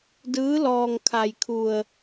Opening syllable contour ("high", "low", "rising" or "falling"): rising